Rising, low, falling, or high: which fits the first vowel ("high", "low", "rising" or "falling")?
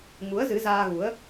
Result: rising